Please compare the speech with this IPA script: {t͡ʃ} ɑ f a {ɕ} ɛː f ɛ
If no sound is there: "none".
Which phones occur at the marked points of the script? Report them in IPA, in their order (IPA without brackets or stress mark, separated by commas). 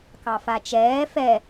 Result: k, t͡ʃ